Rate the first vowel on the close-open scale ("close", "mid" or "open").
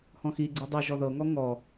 mid